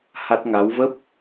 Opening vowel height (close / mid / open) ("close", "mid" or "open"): open